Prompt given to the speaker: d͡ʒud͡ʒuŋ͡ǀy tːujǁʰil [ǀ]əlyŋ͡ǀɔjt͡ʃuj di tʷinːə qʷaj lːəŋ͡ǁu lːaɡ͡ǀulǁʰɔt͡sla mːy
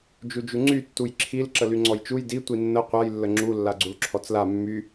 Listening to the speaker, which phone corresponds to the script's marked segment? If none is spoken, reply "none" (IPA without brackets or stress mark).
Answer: ǁ